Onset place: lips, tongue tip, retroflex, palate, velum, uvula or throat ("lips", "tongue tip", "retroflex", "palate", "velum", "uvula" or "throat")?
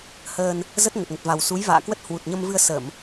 throat